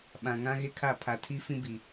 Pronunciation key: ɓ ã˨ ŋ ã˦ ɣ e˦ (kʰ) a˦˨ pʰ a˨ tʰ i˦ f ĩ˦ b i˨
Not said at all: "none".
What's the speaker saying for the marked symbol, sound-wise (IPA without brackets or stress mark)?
kʰ